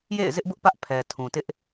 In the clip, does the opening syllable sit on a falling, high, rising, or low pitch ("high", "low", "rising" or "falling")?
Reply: falling